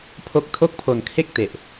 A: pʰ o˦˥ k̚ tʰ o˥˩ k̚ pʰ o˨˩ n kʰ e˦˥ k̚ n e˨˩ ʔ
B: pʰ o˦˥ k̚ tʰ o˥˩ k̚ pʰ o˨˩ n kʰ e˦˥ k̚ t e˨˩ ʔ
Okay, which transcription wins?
B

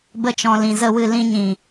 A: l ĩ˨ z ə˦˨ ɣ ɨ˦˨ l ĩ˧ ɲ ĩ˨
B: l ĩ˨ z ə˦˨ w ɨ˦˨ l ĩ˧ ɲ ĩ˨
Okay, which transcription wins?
B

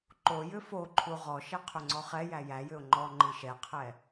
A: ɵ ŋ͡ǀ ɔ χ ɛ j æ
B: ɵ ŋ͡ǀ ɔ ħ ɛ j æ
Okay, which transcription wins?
A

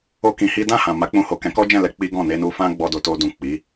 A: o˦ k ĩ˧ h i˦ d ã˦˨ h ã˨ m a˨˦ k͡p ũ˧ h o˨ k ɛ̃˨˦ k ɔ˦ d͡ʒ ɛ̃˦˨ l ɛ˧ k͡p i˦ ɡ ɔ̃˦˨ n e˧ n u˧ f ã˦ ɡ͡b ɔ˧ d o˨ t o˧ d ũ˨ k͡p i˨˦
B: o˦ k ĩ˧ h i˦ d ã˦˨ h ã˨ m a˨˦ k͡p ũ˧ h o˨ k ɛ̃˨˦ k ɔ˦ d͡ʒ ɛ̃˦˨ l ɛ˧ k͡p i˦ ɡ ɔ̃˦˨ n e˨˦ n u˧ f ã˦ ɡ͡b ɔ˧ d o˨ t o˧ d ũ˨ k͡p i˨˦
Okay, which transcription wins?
A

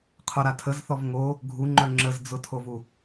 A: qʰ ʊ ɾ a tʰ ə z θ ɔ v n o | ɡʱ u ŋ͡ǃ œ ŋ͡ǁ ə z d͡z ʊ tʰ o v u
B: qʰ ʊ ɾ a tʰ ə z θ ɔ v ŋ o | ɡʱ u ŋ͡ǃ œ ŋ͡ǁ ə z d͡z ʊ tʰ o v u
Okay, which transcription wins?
B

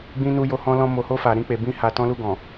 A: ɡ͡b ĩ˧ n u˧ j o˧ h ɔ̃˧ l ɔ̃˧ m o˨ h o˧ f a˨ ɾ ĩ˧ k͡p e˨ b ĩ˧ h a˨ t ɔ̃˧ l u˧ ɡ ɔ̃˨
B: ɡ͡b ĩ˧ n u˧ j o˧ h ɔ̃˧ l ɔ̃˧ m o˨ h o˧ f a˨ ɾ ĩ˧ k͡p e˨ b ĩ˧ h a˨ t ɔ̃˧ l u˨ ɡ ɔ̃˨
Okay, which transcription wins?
A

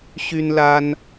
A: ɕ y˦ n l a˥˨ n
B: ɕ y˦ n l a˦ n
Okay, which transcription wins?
B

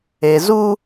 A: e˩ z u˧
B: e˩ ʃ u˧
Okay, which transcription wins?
A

